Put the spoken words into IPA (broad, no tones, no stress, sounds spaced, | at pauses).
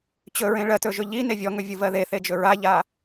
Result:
t͡ɕ ɵ ɹ ẽ ɭ ɜ t ɵ ʒ ɵ ʎ i n e vʲ ɔ ŋ ɵ vʲ u v ɜ ð e θ e d͡ʒ ɵ ɹ a ʎ a